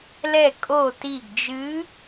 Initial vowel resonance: oral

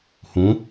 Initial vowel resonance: nasal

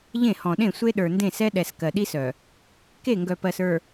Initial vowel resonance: nasal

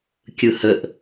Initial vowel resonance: oral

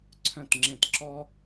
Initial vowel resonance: nasal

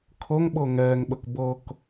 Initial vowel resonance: oral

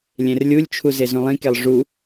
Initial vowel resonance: nasal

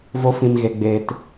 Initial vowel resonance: oral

